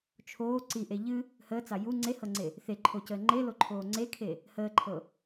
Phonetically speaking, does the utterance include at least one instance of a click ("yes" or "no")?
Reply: yes